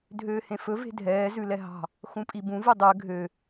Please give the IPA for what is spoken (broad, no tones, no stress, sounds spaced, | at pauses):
dʱ øː h ẽ f ɵ v e̤ dʱ ɛː z ʉ l ɛ ɦ ɑ̤ | x ũ pʼ i b ũ v u dˤ ø ɡʱ ø